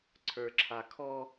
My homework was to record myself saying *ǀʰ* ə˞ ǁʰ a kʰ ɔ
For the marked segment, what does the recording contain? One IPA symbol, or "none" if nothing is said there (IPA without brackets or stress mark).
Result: ǀʰ